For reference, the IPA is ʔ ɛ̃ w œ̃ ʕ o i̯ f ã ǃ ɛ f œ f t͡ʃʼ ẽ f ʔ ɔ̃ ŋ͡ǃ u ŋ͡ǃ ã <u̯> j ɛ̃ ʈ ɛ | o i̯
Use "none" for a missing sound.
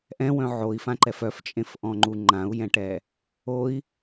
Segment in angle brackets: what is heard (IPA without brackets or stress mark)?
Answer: u̯